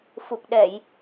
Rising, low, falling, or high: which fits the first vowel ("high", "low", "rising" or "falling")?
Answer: low